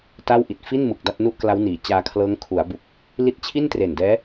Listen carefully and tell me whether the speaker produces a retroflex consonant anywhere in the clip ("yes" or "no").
no